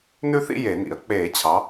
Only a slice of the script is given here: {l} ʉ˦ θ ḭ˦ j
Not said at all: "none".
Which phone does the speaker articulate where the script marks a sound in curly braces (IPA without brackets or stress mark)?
n